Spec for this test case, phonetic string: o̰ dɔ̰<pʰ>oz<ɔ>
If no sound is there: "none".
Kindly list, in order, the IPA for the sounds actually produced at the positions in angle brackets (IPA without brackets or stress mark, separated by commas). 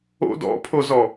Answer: pʰ, ɔ